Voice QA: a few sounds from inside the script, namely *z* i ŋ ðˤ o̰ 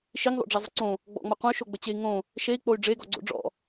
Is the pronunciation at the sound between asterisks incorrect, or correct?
incorrect